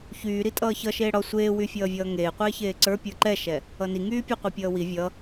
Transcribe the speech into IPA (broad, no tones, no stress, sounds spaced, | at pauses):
ç yː ɾ i tʼ ʌː ç ʌ ʃ eː ɽ ɒ sʷ eː w y fʲ ʌː vʲ ʌː ŋ eː qʷ eː ç eː ǀ ə˞ pʲ ə˞ ǃ ɛ ʃ ɛ | ʌ n i ŋ yː pʲ ə˞ qʷ i pʲ ʌː w i vʲ ʌ